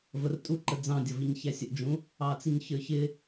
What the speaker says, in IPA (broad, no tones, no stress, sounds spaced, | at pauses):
v ə r tʼ u ǃ ə d͡z ɑ̃ dʲ ʌ v i ɲ ç æ sʲ ə ʔ d͡ʒ ũ | ɑ t͡s i ɲ ç ə˞ ç ɪ